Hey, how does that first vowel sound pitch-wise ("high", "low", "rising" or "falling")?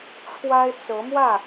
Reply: high